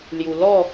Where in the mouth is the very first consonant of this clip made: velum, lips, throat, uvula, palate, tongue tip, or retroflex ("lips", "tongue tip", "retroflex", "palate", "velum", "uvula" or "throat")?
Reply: tongue tip